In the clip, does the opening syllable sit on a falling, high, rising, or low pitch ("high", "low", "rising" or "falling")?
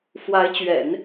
rising